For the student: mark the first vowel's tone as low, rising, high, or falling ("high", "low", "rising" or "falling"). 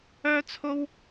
high